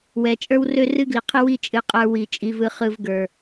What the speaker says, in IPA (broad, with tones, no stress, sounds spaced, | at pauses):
w ɛ˨ t͡ʃʼ ə˞˦ w r ø˦ r ɨ˦ ɡ l i˨ qʰ ɨ˦ w i˦ t͡ʃʼ ɨ˨ qʼ ə˞˦ w i˨ t͡ʃʼ i˨ v ɯ˨ χ ɯ˨ v ɡ ə˞˨